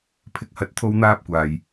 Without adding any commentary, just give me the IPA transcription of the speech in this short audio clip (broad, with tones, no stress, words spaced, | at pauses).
pʰɪ˥k̚hɐ˥t̚ t̪ʰo˥wn̪aː˥p̚kʷaː˨j